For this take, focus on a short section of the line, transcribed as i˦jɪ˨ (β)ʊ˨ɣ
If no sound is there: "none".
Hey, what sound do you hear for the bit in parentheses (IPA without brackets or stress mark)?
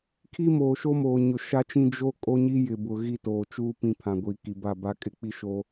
b